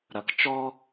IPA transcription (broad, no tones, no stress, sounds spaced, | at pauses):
ɾ ɐ k t͡ʃ ɔ